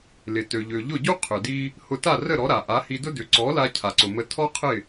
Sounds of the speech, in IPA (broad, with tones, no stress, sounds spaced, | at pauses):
l ɪ˩ t ø˩ ʎ ø˩ ʎ ʊ˥˩ ɟ u˥ qʰ ʏ˩ d i˧ | h ʊ˧ t a˥˩ r ə˥˩ ɾ ɔ˩˥ ɾ a˩ ʔ a˩˥ h i˧ d ʊ˥ d ʏ˩˥ ǀ ɔ˩˥ l a˧ cʰ a˩ ǀ ʊ˩ m ə˩˥ tʰ ɔ˥ qʰ ɪ˥˩